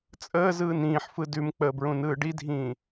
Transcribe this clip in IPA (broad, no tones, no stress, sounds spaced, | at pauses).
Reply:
t͡sʼ əː z ɯː n ĩː ħ f ɯ d ʉ m k͡p əː b ɹ ũ n ɯː ɖ i dʱ ĩː